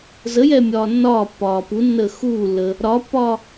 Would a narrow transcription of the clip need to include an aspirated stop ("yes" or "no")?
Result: no